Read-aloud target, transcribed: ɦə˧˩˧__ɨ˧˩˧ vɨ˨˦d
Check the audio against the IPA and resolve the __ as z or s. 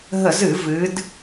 z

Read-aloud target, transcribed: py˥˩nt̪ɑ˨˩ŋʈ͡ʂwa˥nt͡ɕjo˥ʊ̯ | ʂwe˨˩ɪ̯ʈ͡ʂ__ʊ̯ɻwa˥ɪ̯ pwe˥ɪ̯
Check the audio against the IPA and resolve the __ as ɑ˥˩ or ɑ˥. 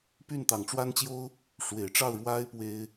ɑ˥˩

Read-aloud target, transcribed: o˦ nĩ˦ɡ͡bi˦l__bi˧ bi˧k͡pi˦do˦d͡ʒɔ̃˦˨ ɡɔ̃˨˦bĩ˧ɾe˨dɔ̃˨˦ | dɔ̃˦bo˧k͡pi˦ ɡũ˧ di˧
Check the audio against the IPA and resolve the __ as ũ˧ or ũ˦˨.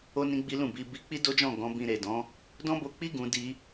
ũ˦˨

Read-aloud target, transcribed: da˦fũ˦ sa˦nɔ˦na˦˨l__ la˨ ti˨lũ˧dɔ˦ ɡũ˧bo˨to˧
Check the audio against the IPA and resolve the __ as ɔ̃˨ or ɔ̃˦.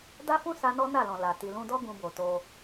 ɔ̃˨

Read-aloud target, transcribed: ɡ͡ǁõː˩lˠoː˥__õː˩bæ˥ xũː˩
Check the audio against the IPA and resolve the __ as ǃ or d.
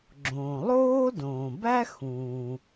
d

